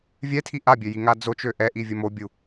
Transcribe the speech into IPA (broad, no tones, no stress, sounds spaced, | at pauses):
vʲ ɛ tʰ i ʔ a bʲ ø j i ŋ a d͡z o t͡ʃ ø ʔ ɛ ʔ i vʲ ə m o bʲ u